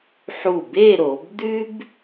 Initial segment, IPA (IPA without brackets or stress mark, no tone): ħ